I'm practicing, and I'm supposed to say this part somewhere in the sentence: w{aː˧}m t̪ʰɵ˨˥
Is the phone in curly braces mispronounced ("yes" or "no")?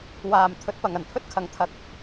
yes